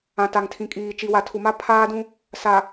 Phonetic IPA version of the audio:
ã˨ t a˨ ŋ tʰ ĩ˨ kʼ iː˨ t͡ʃ i˨ w a˨ tʰ u˨ m a˦ pʰ aː˦ d ũ˦ | s a˨

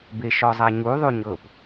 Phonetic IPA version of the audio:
b e ʃ ɔ zˤ a ɲ u ðˤ u ɲ ɤ p

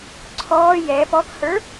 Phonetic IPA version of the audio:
ǀʰ ɔː j ɛ p ɔ k h ə˞

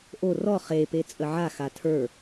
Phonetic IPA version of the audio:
ʔ o r ɔ χ e p e t͡sʼ ə ʕ a x a tʰ ə˞

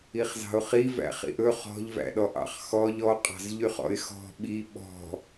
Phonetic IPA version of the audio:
i χ z ɑ̤ ʊ̯ χ i v æ̰ χ ḭ ʔ ɵ χ ɔ̤ ʎ v æ̰ ɗ ɔ ʔ ɑ̰ χ x ɔ ʎ ɔ qʼ ɑ̤ z ʎ y χ ɔ̰ ɪ̯ x ɔ̤ ɓ i ɓ ɔ̤

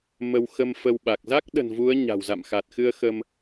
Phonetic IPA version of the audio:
m ə˧ w x ə˧ m f ə˧ w ɓ a˨˩ k̚ z a˦˥ k̚ ɗ ə̤˨˩ n v u˨˦ ə̯ ɲ a̤˨˩ w z a̰˧˨ m x a˨˩ t̚ x ɨ˧ ə̯ x ə˧ m

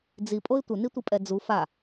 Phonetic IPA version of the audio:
d͡z i pʼ o ɪ̯ tʷ ə n i tʷ i pʼ ɛ d͡z u f a

